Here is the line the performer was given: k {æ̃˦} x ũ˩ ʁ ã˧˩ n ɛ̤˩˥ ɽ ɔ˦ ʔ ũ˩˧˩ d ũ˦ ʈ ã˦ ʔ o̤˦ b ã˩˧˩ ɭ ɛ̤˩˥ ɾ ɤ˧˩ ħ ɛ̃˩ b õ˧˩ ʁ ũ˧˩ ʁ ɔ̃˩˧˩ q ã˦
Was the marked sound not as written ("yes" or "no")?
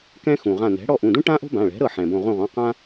yes